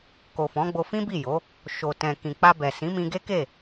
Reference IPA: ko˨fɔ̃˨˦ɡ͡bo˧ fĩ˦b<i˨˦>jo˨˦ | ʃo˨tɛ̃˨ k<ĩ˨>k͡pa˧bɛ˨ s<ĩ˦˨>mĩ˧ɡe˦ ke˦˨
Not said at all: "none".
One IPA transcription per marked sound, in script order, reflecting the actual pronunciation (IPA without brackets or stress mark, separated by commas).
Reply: i˦˨, ĩ˨, ĩ˨˦